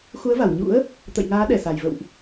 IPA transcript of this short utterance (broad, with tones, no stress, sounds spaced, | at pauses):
x u˨˦ ə̯ v a˧˩ w ɲ ṵ˧˥ ə̯ | t̪ ə̰˧˨ j ŋ aː˨˦ ɗ ɛ˨˩ s a˨˩ j v ə̰˧˨ w ʔ